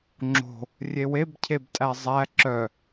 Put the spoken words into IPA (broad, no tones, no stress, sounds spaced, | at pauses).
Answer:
ŋ͡ǁ o̤ | rʲ e w e b cʰ e b tʼ æ zˤ æ ǁ œ